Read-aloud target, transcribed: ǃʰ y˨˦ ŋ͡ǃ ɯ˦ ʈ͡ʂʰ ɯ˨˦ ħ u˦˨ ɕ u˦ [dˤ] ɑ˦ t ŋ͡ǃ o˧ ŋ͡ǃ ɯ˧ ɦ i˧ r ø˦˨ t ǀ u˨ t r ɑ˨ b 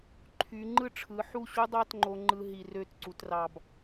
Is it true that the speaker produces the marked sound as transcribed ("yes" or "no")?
yes